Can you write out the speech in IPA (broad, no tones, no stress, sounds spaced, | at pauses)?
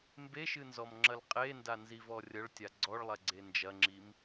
m b e ʃ ɨ n z ɔ m ŋ͡ǁ ɐ l qʼ e n d a n z i v ɔ rʲ ɐ ɭ tʲ a ɡ͡ǀ ɔ ɭ lˠ ɛ ɡ͡ǀ e n d͡ʒ ɐ ŋ͡ǁ i m